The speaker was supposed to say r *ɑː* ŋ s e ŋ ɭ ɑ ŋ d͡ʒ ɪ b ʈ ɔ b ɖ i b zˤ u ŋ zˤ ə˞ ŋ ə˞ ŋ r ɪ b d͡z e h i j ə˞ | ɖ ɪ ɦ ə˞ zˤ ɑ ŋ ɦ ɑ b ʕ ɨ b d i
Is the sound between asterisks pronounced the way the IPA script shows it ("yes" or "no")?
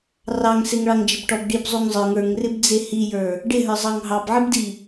no